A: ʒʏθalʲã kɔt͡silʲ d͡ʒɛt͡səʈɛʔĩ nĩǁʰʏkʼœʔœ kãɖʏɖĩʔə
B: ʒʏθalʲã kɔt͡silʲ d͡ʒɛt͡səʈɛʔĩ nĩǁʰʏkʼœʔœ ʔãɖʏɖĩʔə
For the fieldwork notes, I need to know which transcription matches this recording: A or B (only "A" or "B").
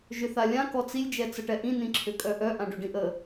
B